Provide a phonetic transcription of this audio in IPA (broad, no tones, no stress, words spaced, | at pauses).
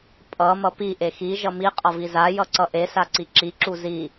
pʼʌ mʌpi ʔexi ʒʌmi qʼʌviza jʌǀʌʔe saǀiǁi ǁuzi